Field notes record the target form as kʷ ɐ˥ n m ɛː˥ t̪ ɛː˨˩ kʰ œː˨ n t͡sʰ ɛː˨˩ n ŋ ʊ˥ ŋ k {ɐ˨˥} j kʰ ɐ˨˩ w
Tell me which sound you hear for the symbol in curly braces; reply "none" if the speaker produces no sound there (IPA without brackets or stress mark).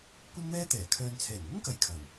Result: ɐ˨˥